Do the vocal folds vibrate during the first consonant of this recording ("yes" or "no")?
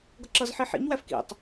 yes